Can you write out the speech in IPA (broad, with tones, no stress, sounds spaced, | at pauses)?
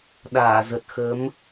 ɗ aː˧˩ z ə˨˩ t̚ x əː˨˦ m